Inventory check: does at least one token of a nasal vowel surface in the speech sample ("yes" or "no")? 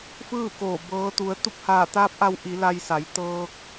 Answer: no